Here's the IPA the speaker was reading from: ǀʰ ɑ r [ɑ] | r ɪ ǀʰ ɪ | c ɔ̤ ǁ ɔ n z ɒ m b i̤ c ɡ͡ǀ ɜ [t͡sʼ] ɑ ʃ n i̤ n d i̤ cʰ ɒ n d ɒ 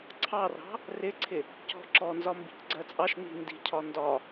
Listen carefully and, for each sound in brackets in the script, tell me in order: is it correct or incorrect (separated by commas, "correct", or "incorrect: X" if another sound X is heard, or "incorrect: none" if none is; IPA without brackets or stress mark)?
incorrect: ɑ̤, correct